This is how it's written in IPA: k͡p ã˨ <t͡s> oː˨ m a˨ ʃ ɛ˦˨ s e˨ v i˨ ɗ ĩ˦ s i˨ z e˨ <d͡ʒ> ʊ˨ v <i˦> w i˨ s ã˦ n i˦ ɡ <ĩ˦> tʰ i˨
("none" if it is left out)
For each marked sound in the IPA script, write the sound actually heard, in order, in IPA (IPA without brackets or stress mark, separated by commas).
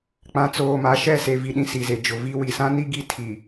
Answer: t͡s, d͡ʒ, i˦, i˦